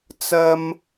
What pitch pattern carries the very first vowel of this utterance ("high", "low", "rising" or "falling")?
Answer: high